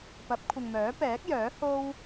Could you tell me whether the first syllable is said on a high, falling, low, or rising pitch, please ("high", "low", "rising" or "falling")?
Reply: rising